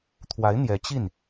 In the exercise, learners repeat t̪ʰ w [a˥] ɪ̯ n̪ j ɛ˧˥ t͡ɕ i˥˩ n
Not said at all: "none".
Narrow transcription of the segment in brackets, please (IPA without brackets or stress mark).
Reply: a˧˥